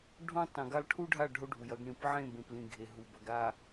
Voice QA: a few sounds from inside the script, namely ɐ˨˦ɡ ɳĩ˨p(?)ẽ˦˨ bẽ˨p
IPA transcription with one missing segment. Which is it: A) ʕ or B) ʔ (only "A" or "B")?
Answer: A